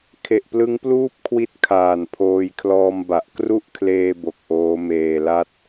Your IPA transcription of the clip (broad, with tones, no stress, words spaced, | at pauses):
kʰe˨˩ʔplɯ˦˥ŋpluː˥˩p̚kʰwi˦˥t̚ kʰaː˨˩npʰoː˧jkʰlɔː˧mba˨˩ʔ kru˥˩ʔkʰleː˧ bo˨˩k̚ʔoː˦˥meː˧la˥˩t̚